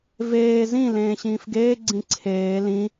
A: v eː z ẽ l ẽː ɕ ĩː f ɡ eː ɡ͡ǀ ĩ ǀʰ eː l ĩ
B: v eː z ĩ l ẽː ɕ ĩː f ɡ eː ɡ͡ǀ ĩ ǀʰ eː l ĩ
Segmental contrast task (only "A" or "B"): B